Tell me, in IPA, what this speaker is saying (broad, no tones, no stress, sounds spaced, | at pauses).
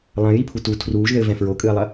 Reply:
lˠ ɐ̃ j i pʰ u t u tʰ r uː ʒ ð ɘ v ɛ̃ f ɹ o kʼ ɨ ɐ̯ lˠ ɐ